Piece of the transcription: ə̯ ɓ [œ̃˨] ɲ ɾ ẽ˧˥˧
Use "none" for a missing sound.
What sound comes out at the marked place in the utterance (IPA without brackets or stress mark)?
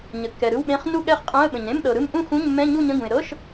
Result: ə̃˨